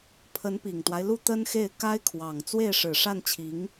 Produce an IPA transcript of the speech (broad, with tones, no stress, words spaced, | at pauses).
pʰə˧˥npi˨˩ŋt̪wa˦ɪ̯ lu˥˩t̪ə˥nxe˥˩ɪ̯ ka˥ɪ̯kʰwɑ˨˩ŋ t͡swe˥˩ɪ̯ʂɻ̩˨˩ ʂa˥˩nt͡ɕʰi˧˥ŋ